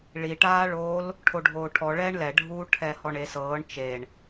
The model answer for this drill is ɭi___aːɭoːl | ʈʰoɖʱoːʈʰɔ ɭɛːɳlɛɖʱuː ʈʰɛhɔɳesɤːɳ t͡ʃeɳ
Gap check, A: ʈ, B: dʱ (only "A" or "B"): A